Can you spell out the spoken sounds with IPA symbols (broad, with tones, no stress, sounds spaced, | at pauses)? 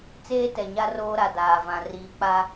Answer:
t͡s eː˦ t ɛ˨ ɲ a˦ r oː˦ ɾ a˨ d aː˨ v ã˨ r iː˨ k͡p a˦